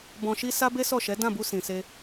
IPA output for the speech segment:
b ɔ̃˧ ʃ i˦ s a˦ b e˦ s ɔ˦˨ ʃ ɛ˨˦ d ã˦˨ b u˧ s ĩ˨ s e˧

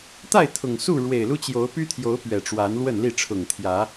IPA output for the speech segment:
t̪ a˥˨ ɪ̯ t̪ʰ ʊ˨˩ ŋ s u˥˨ ɻ w e˨˩ ɪ̯ l u˦ t͡ɕ j o˨˦ ʊ̯ p y˦ t̪ʰ j o˨˦ ʊ̯ p ɥ ɛ˨˩ ʈ͡ʂ w a˨˦ n l w ə˥˨ n l i˥˨ ʈ͡ʂʰ ʊ˨˩ ŋ t̪ʰ j ä˨˦

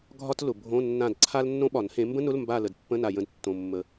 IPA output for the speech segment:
ɡʱ ɒ˥ t l ʊ˨˩ bʱ õ˧˥˧ nː ã˦˨ d ǀʰ a˥ l nː õ˥ ɓ ɒ˨˩˦ n h ẽ˨˦ m b ə̃˥ n ʊ˧˥˧ l m b a˦˨ l ə˨˩ d pː ə̃˧˥˧ n a˨˩ j ə̃˨˦ d tː õ˨˩ mː ə˨˩

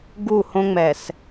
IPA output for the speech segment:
ɡ u˦˨ h õ˦ ŋ͡m ɛ˨ s

